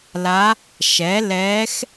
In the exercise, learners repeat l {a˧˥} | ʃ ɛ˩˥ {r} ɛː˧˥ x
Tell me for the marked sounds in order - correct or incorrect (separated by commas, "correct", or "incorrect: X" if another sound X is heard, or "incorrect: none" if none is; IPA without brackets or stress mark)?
correct, incorrect: l